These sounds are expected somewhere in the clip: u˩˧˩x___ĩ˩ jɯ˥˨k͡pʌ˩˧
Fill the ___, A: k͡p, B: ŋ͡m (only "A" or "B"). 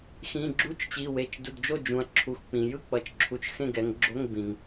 A